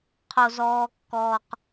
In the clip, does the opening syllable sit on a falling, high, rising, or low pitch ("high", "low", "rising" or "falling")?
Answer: high